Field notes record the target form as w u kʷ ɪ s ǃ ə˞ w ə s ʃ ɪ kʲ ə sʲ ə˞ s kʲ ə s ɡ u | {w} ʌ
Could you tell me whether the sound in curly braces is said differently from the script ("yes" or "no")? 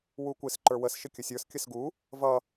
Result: yes